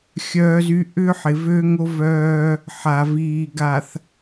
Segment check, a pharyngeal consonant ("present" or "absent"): present